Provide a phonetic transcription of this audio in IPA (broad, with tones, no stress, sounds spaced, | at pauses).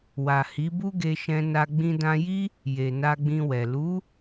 w a˨ h i˨˦ b u˦ ɡ e˧ ʃ ɛ̃˧ n a˧ ɡ͡b ĩ˧ d ã˧ j i˦ | j e˨ n a˧ ɡ͡b ĩ˧ w ɛ˨ l u˨˦